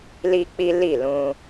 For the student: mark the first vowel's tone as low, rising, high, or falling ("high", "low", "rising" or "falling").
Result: high